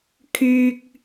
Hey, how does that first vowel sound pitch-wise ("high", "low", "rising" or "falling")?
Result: high